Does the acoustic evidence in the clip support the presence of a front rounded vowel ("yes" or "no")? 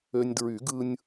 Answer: yes